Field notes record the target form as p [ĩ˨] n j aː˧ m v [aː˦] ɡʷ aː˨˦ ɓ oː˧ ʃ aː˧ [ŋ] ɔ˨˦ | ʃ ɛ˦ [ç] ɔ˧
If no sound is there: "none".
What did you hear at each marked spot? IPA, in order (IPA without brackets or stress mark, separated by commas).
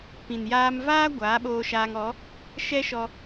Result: ĩ˨, aː˦, ŋ, ʃ